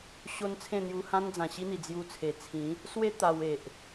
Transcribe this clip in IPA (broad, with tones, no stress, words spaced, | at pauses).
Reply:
ɕo˦n t͡sʰẽ˥˧n̪ju˧hã˦nd͡zã˨˩ ɕi˦n̪i˨˩ d͡zju˧t͡sʰe˨˩ t͡sʰĩ˨˦ | swe˦ t̪a˧we˨ʔ